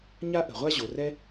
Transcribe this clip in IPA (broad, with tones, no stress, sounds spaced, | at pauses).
ɲ a˥ ʔ ə̤˩ ʁʷ a˥ ʑ o˩ r ɛ˥